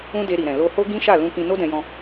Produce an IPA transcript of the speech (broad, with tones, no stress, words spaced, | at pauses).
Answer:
ũ˦de˧ɾi˨ɾɛ̃˨ lo˧ho˦ ɡĩ˦ʃa˦˨ lũ˧kĩ˧ no˦dɛ̃˧jɔ̃˧